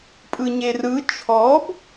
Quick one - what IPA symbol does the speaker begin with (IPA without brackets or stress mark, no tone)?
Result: pʼ